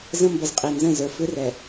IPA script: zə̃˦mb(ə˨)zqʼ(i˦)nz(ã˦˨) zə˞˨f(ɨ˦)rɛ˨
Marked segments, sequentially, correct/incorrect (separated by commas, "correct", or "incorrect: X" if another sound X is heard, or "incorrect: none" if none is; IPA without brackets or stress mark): correct, incorrect: i˨, incorrect: ə̃˦˨, correct